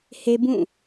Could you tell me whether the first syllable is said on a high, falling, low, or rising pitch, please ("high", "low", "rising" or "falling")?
high